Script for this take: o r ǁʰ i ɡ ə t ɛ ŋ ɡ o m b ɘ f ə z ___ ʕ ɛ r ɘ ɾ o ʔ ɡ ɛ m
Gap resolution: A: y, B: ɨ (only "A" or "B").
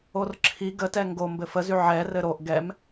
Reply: A